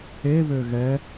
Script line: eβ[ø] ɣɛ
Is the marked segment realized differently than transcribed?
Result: no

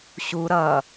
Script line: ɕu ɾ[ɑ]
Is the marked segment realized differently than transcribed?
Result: yes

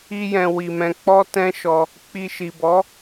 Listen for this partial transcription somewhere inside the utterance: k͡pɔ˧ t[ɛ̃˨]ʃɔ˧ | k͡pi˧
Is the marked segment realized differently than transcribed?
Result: yes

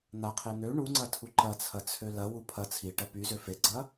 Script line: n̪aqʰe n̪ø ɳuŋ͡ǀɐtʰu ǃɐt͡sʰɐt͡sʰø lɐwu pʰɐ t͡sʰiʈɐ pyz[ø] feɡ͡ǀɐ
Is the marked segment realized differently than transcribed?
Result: no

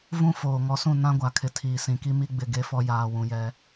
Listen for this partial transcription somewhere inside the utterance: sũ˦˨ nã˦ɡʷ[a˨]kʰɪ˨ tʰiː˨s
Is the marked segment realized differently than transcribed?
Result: no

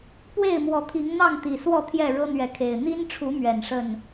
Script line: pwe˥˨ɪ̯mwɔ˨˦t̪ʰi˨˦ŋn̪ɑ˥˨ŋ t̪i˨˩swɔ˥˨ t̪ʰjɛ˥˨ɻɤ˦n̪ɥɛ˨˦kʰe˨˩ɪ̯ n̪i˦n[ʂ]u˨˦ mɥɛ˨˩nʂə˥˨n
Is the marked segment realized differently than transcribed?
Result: yes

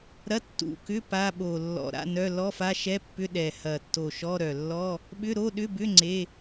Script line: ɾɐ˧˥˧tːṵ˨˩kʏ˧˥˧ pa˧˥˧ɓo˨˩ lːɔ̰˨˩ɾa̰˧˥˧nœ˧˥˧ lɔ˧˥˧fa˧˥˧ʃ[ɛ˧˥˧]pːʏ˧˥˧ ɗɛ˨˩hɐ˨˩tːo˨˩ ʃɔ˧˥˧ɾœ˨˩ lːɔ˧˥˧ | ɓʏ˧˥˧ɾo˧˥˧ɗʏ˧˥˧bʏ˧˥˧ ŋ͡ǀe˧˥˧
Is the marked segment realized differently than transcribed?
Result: no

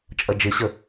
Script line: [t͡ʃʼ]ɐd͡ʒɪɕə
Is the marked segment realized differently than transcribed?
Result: no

